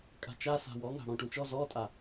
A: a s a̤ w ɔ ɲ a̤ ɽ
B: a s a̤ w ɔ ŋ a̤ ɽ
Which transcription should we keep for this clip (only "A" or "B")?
B